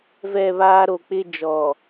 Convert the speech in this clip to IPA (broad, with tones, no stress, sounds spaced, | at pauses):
v ɛ˦˨ β aː˦ ɾ o˨ k͡p ɪ˦ d͡ʒ ɔ˨